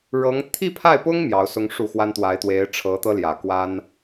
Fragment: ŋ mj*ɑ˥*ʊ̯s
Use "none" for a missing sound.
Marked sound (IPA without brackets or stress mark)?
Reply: ɑ˧˥